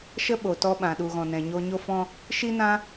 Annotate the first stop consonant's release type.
implosive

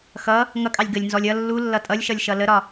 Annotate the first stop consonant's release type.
ejective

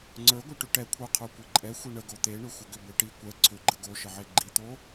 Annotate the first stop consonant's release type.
click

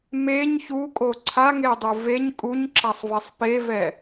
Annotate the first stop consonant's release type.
ejective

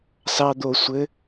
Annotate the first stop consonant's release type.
plain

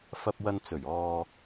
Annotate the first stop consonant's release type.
plain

